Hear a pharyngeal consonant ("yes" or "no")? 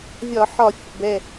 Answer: yes